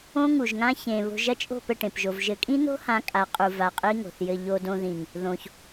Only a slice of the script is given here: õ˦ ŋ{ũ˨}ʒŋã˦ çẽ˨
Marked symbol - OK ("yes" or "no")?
no